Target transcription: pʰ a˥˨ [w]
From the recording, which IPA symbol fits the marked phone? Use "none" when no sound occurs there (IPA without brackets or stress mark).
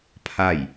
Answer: j